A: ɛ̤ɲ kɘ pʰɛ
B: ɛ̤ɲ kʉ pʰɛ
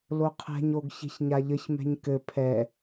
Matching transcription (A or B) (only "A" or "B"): A